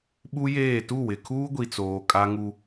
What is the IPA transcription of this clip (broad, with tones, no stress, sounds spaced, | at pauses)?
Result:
ɓ u˦ j eː˦˨ t u˦˨ w ɪ˨ kʰ uː˦ ɡʷ i˨ t͡s oː˨ kʼ a˦ ŋ u˦